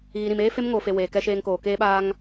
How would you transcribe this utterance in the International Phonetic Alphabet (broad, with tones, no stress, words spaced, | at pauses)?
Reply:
ɣi˨ɾĩ˨meː˦ fe˦mŋoː˨fe˨ weː˨ kɛ˨ʃeː˨ŋ koː˨ keː˦ɓaː˦ŋ